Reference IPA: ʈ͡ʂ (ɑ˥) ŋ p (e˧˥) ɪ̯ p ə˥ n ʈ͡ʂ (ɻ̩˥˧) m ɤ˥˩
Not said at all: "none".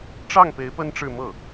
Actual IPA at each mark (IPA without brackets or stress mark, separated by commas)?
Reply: ɑ˥˩, e˧˥, ɻ̩˥˧